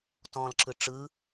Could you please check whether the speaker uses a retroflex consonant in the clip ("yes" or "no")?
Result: yes